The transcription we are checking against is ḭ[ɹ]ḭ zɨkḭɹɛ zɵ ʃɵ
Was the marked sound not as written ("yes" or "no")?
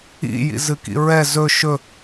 yes